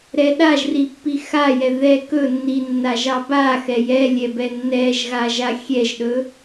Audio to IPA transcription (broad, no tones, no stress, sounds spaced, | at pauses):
ɾ ɛ ɗ a ʒ r i pː i x a j ɛ ð ɛ k ɵ nː i nː a ʒ ɑ b a x ɛ j ɛ lʲ ɛ b ɛ nː ɛ ʒ ɣ a ʒ a xʲ ɛ ʒ ɗ ɵ